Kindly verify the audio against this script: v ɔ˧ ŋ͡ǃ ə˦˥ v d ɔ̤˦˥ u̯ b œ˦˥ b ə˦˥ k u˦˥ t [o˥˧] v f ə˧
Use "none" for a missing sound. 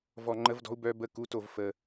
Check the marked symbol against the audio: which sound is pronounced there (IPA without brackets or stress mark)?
o˥˧